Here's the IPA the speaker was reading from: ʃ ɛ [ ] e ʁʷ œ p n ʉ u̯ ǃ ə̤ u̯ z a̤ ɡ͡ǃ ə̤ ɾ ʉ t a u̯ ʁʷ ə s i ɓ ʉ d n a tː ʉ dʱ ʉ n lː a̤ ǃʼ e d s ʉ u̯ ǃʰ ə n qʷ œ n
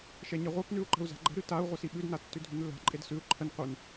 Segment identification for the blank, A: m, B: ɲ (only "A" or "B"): B